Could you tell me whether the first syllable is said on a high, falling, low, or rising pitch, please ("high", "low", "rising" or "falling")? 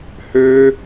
high